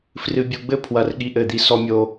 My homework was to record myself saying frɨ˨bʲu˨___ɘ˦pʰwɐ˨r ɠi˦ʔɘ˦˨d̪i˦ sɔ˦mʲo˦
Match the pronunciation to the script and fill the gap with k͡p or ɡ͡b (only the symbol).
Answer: ɡ͡b